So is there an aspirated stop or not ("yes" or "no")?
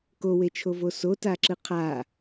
yes